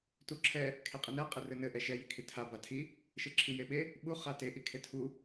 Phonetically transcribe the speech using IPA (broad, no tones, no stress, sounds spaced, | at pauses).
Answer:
t u ǁʰ ɛ | kʰ e qʼ i n ɛ qʼ e r ɘ n ɘ ʔ ɛ ʃ ɛ j i kʰ i tʰ a b a tʰ i | ʃ ɘ ǁʰ i j e ɓ e | ɓ u χ a t e ʔ i kʰ e tʰ u